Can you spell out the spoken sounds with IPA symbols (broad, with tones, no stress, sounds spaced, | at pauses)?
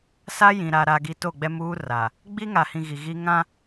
s a˦ j ĩ˨ ɾ a˨ ɾ a˨ ɡ i˨ t o˦˨ ɡ͡b ɛ˦ m uː˦ r a˨ | ɡ͡b i˦ ŋ a˨ h ĩ˨ ɣ i˨ ɣ i˦ ŋ ã˦